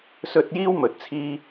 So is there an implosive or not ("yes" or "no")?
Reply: no